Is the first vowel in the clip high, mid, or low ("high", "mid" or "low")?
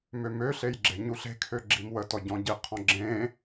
mid